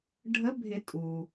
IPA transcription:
ɖʱ ə˨˦ bʱ ɪ˨˩˦ tʼ u˩

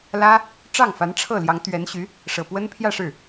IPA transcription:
l ä˥ | ʈ͡ʂ ɑ˥˩ ŋ f a˧˥ n ʈ͡ʂʰ ɤ˥˩ l j ɑ˧˥ ŋ t̪ ɥ ɛ˧˥ n ɕ y˧˥ | ʂ ɤ˨˩ p w ə˥ n pʰ j ä˥˧ ʂ ɻ̩˥˩

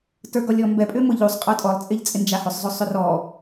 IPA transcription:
t ə˞ ɡ ɔ lʲ ɔ m b ɛ pʼ ʏ m ʊ ʎ u sˤ qʼ ə˞ tʼ ɔ lˠ t͡sʼ ɪ ʎ t͡sʼ ɪ n d͡ʒ a h ʏ sˤ zˤ o sˤ ʏ r ɔ

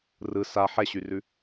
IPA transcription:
r ɯ s a ħ ɛ ɕ y r ʉ

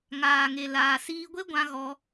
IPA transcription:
ŋ aː˨ ŋ e˨ l aː˨ s iː˧ ɡʷ e˦ ɡʷ ã˧ ɣ ɔ˧

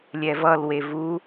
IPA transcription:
lʲ ɛ v ʌ l w e v u

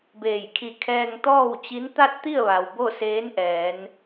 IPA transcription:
b eː˧˩ j kʰ i˧˩ kʰ ɛː˧ ŋ t̪ ɔː˥˨ w t͡ɕ i˧˥ n t̪ a˥˨ t̚ t̪ i˥˨ ə̯ ʋ a˩ w b o˥˨ s eː˧˥ n ʔ ɛː˩˧ n

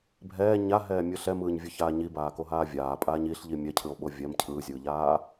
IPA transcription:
bʱ ɛː ɲ a ɦ ɛː mʲ ɯ ɬ ɛ m ɯː ɲ vʲ ɯ ç aː ɲ i b aː k o ɦ aː vʲ aː pʼ aː ɲ i ɬ ʎ i mʲ ɛ cʰ ɯ o̯ ɓ o vʲ ɛ m cʰ ɯː zʲ ɯː ʎ aː

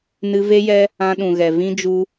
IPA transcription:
n ɨ˧ v e˦ j ɛ˦ | ã˧ ɗ ũ˨ ɣ ɛ˨ v ĩ˦ d͡ʒ u˦

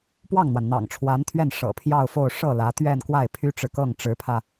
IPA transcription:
p w ɑ˥˩ ŋ n̪ w a˩ n n̪ ɑ̰˨˩ ŋ ʈ͡ʂʰ w a˧˥ n t̪ʰ ɥ ɛ˥˩ n ʂ ɤ̰˨˩ pʰ j ɑ˥˧ ʊ̯ f o˥˧ ʊ̯ ʂ ɤ˥˩ l ä˧˥ t̪ ɥ ɛ˥˧ n k w a˥˩ ɪ̯ pʰ y˥ ʈ͡ʂ ɻ̩˨ k ɤ˥˩ ŋ ʈ͡ʂ ɻ̩˧˥ pʰ ä˧

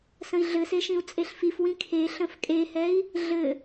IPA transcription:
s ə̃ i̯ ɮ ɘ s e ʃ ĩ u̯ t͡sʼ e ɬ f i f w ĩ kʰ e ɬ ə̃ f kʼ e h ɛ i̯ | ɮ ɘ

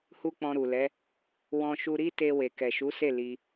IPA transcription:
h u˦ k͡p ɔ̃˧ ɾ u˨ l ɛ˨˦ | w ɔ̃˧ ʃ u˧ ɾ i˦ t e˧ w e˨ k ɛ˨ ʃ u˨˦ s e˦˨ l i˧

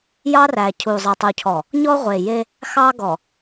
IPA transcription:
j ɑ˦ r æ˨ cʰ u˨ zˤ e˨ tˤ u˨ cʰ ɔ˨ | ɲ ɔ˦ ʁʷ e˨ j e˦ | x ɑ˦ ɡ ɔ˨

